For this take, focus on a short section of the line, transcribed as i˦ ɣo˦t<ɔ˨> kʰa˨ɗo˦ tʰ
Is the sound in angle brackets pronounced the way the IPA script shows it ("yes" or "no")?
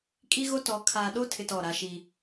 no